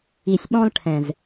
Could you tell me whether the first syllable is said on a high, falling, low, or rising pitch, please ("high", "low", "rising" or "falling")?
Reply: low